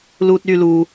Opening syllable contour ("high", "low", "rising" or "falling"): high